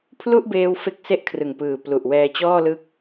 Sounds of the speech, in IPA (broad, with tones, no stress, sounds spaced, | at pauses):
pʰ l u˥˩ ʔ b eː˧ w f e˦˥ k̚ s e˦˥ ʔ kʰ r ɯ˨˩ ŋ p ɯː˨˩ p l u˨˩ ʔ w ɛː˧ t͡ɕ ɔː˥˩ l ɯ˦˥ k̚